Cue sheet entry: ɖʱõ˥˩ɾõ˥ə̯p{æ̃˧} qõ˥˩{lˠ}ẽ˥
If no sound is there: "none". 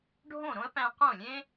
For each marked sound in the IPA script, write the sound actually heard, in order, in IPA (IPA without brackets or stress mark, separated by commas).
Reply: æ̃˧, lʲ